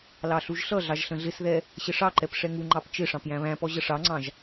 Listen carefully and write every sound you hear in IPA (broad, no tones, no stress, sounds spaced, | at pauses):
l ɑ ɬ u ʒ ɬ ʌ ɮ ɑ ʒ ɬ ə̃ ɮ ɪ s ð ɛ | ɕ ɪ ʂ ɑ ǃ ɛ p ʂ ɛ ŋ u ŋ͡ǃ ɑ p t͡ʃ ɪ ʂ ɑ̃ p j æ̃ β æ̃ p ɔ ʑ ə ʂ ɑ ŋ͡ǀ ɑ̃ ʒ